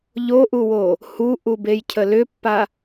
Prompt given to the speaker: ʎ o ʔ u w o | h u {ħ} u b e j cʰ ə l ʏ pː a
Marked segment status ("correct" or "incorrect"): incorrect